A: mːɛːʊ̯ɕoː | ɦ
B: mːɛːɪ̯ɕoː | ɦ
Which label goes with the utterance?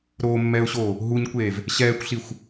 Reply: A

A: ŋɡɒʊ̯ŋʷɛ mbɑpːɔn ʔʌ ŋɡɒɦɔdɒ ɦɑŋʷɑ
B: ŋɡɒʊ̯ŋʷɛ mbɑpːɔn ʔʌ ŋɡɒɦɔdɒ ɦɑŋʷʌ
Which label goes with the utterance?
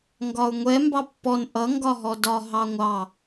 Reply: A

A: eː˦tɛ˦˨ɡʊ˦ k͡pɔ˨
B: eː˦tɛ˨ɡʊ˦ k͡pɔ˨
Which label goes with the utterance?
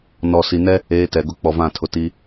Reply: B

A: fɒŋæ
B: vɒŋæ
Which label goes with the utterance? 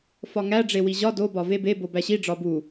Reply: A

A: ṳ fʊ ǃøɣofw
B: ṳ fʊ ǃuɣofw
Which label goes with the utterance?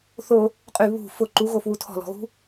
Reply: B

